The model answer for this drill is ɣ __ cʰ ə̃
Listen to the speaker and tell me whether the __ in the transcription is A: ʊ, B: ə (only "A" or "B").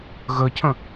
B